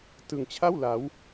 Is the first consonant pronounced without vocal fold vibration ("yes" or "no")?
yes